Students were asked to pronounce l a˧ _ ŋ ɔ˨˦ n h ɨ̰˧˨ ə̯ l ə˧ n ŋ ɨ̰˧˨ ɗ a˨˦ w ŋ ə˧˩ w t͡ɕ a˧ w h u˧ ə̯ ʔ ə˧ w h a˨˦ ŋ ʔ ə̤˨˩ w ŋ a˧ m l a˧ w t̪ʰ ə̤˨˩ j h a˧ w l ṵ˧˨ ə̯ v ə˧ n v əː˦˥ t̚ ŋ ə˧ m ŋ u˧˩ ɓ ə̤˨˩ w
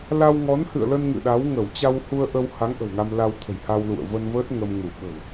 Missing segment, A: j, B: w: B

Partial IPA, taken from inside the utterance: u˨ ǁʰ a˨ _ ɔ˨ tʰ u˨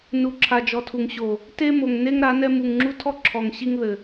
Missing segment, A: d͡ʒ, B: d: A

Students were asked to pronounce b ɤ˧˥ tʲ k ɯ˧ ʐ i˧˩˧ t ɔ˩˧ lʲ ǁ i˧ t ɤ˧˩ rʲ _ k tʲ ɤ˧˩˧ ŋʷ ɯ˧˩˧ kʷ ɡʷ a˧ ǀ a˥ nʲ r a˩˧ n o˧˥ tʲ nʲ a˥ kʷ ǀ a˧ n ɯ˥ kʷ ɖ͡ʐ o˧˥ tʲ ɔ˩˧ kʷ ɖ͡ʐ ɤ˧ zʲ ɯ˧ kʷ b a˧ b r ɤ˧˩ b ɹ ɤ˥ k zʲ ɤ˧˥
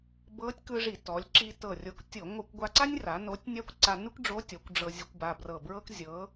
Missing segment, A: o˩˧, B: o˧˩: B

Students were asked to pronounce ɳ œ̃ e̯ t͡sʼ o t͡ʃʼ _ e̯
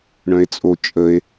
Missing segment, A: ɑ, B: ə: B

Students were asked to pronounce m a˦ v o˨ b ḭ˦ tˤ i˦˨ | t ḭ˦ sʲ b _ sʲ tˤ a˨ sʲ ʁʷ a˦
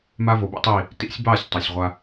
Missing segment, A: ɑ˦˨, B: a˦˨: A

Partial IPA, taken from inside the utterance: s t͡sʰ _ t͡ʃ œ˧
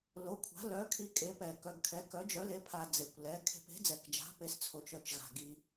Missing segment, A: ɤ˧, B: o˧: B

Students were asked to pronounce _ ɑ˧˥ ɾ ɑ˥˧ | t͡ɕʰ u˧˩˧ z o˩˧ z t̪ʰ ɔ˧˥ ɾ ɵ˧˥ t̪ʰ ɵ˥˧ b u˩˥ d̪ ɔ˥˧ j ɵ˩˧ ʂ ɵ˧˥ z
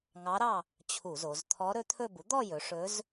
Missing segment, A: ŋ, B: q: A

